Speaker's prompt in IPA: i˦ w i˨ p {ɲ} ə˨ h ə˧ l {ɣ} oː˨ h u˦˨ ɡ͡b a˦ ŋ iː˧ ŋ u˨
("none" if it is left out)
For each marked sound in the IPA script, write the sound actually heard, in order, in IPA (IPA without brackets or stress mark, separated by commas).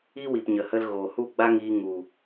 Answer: ɲ, ɣ